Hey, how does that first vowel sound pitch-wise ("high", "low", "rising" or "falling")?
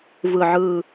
low